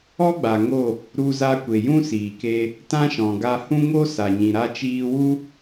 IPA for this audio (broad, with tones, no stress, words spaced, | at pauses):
ɔ˦ɡ͡ba˨ŋo˦˨ | ɾu˧za˧kʷe˨ jũ˦ siː˨ke˧ | tã˦ʃɔ̃˨ɡa˧ hũ˦ŋo˦ sa˨ɲĩ˨ ɾa˧t͡ʃiː˧wu˦